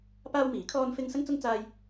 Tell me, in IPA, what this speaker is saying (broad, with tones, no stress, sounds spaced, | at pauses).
p aː˥ w m iː˨˥ kʰ ɔː˥ n f ɪ˥ ŋ s ɐ˥ ŋ t͡s ʊ˥ ŋ t͡s aː˥ j